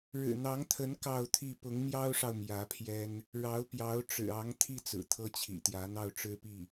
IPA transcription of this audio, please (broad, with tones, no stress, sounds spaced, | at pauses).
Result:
ɻ ɻ̩˨˩ n̪ ɑ˧˥ ŋ t̪ʰ ə˧˥ n k ɑ˥˧ ʊ̯ t̪ʰ i˥˩ p ʊ˧˥ ŋ m j ɑ˥ ʊ̯ ʂ ɑ˨ ʊ̯ m j ä˧˥ pʰ j ɛ˥ n | ɻ ɑ˧˥ ʊ̯ p j ɑ˧˥ ʊ̯ ʈ͡ʂ ɻ̩˨˩ ɑ˧˥ ŋ t̪ʰ i˥˩ t͡s ɹ̩˨˩ t̪ʰ ɤ˥ t͡ɕʰ ḭ˨˩ t̪ j ä˧˥ n̪ ɑ˥˩ ʊ̯ ʈ͡ʂ ɻ̩˥ p i˥˩